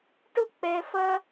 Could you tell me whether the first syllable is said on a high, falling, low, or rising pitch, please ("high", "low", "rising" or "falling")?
high